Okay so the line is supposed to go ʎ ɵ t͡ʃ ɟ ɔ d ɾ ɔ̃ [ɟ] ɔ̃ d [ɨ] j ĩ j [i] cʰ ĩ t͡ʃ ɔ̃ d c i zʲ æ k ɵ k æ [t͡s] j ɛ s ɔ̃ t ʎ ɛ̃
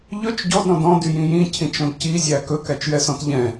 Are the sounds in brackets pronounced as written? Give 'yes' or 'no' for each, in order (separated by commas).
no, no, no, no